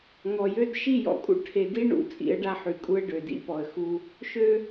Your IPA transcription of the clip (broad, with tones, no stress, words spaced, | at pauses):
ŋɔ˨jø˦d ʃi˦˨jɔ̰˨kʼṵ˦ ʈʰe˨di˦ ɳṵ˨ t͡sʼḭ˨˦ə̯ɖa˦ħy˨kʼu˦ə̯ ɖø˨dḭ˦pɔ˨ə̯ xu˦ | ʃø˦